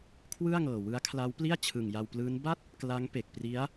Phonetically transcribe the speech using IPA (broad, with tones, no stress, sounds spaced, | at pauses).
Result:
kʰ w ɯ˥˩ a̯ ŋ ɤː˨˩ w ɯ˦˥ a̯ kʰ l a˦˥ w p l i˥˩ a̯ t͡ɕʰ ɯ˨˩ ŋ j a˧ w p l ɯː˦˥ n b a˥˩ t̚ | k l a˦˥ ŋ p e˨˩ k̚ p r i˦˥ a̯